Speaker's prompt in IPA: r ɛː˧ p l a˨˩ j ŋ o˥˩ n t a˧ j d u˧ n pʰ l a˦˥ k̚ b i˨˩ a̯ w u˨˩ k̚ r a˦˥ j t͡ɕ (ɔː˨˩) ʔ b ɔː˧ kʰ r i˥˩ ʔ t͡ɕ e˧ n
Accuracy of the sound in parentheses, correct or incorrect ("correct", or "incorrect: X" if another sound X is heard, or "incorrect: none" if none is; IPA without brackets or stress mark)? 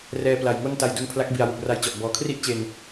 incorrect: ɔ˨˩